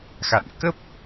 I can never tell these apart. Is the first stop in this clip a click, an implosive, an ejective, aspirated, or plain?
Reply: plain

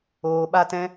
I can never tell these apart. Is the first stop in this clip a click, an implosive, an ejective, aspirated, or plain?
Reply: implosive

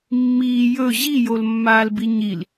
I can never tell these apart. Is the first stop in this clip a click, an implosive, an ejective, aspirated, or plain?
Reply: plain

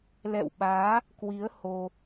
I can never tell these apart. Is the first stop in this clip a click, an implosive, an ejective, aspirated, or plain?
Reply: implosive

